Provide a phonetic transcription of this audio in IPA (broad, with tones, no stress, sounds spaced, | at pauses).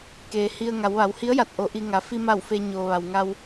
k eː˩ h i˧ ə̯ ŋ a˩˧ w ʋ a˩˧ w h i˧˥ ə̯ j a˧˩ t̚ ʔ o˩˧ ʔ i˧ ŋ a˩˧ f i˧ m a˧˩ w f eː˧ ɲ oː˩ ʋ a˩ w ŋ a˧ w